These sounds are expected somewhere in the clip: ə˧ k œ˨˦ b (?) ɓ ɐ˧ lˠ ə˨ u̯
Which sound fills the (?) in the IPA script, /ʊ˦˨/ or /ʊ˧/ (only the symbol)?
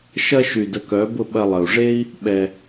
ʊ˦˨